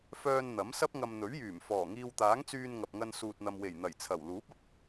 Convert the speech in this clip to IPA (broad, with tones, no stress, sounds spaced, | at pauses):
f œː˧ n n̪ ɐ˨˥ m s ɐ˥ p̚ ŋ ɐ˧ m n̪ ɵ˨˥ ɥ j yː˨˩ m f ɔː˨˩ ŋ iː˧ w t̪ aː˨˥ ŋ t͡s yː˧ n ŋ ɐ˨ p̚ ŋ ɐ˧ n s uː˨ t̚ n̪ ɐ˨ m w e˨˩ j n̪ ɐ˨˩ j t͡sʰ ɐ˨˩ w l uː˨˥ p̚ ɐ˨ p̚